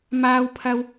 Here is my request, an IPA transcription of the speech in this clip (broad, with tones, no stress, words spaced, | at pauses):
maː˥wpʰɐ˥w